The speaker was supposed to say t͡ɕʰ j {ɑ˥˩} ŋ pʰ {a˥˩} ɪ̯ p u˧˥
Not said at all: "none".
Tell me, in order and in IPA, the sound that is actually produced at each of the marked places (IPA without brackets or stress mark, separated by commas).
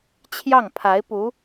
ɑ˥˩, a˧˥